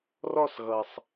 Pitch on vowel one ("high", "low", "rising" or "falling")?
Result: falling